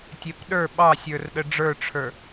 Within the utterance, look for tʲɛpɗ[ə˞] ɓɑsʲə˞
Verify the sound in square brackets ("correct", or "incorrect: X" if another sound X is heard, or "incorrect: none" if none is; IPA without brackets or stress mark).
correct